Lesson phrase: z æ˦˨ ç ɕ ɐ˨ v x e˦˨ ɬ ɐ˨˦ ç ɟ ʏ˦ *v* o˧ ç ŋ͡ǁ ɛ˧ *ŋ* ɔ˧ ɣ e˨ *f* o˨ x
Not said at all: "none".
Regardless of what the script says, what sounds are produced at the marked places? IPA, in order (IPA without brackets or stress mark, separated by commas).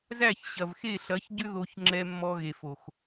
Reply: ð, mː, f